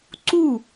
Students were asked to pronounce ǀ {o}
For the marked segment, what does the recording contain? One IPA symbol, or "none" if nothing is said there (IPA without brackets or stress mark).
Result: u